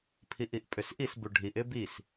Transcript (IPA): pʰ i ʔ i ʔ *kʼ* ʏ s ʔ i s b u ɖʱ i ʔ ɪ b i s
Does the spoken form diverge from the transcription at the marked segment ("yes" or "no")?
yes